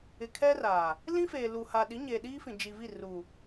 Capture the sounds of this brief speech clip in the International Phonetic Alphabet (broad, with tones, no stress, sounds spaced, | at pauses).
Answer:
ɪ˨ kʰ ɛ˦ r aː˨ | l ĩ˦ f eː˨ l u˨ h a˨ ɗ i˨˦ ɲ eː˨ ɗ iː˦ f ĩ˨ d͡ʒ i˨ v i˦˨ r u˨